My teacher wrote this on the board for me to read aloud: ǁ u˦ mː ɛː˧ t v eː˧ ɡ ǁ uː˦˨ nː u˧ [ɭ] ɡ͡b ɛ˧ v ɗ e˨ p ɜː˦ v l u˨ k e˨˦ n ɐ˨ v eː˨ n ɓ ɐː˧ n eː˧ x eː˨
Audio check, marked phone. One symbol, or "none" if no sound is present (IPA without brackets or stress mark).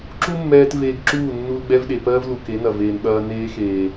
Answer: l